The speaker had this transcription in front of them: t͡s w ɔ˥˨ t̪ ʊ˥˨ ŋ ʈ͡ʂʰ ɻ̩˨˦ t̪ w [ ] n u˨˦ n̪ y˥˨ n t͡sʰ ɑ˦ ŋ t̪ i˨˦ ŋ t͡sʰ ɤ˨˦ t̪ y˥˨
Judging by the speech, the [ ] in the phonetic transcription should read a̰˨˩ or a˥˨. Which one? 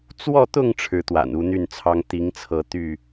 a̰˨˩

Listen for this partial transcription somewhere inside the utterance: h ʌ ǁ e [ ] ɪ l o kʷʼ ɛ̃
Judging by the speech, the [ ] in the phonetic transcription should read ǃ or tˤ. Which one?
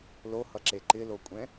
ǃ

